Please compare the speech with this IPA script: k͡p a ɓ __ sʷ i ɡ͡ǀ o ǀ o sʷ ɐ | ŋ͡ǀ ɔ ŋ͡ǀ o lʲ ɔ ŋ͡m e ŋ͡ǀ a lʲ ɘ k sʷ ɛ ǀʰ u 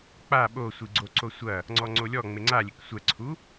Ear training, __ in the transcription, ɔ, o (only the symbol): o